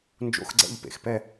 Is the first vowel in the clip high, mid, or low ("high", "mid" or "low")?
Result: mid